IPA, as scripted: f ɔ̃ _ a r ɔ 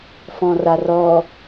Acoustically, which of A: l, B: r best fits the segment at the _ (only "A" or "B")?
B